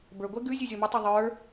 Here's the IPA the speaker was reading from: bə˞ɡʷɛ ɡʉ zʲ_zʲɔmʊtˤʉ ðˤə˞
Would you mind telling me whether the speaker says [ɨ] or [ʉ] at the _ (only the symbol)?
ʉ